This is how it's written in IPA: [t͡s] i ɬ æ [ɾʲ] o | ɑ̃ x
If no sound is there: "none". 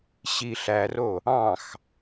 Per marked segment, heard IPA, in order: ɕ, r

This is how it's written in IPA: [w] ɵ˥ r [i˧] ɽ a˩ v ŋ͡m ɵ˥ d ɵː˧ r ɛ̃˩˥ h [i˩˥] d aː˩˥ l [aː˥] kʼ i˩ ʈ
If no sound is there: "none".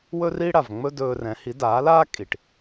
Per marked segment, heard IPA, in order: w, i˥, i˩˥, aː˥

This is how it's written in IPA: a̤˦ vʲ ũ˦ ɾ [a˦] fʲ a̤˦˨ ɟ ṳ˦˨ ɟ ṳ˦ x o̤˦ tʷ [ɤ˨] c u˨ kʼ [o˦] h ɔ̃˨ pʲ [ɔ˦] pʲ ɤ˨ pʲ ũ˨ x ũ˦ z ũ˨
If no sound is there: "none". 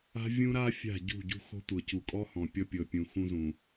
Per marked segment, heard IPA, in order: a˦, ɤ˨, ɔ˦, ɔ˦

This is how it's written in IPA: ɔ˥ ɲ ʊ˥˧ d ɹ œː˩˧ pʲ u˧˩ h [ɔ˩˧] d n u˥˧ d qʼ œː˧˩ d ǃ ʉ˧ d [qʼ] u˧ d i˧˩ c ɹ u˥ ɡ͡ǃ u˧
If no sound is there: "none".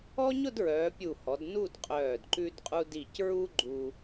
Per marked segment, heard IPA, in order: ɔ˩˧, qʼ

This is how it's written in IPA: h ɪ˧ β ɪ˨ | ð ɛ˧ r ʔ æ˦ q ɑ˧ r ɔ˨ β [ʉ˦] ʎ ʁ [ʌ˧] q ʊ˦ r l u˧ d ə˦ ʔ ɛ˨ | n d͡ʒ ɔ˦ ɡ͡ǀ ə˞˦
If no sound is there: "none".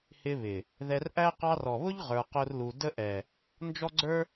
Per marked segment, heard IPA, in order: ʊ˦, ə˞˧

